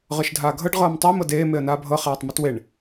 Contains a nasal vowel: no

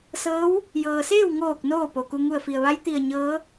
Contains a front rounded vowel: no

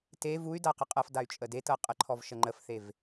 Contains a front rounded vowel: yes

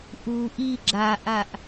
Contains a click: yes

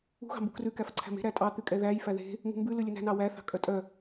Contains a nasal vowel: no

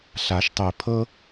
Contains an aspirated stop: yes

